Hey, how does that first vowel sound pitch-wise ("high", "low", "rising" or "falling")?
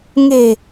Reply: low